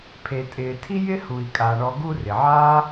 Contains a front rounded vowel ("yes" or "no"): no